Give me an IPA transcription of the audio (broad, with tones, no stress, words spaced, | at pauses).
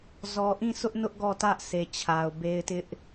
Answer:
zɔ˨ʔĩ˦˨ sʰʊ˦ʔnʊ˦ʔ ɡɔ˦˨tä˦ʔsʰe˨ t͡ɕʰa˨ʊ̯be˦ɪ̯ tɪ˦ʔ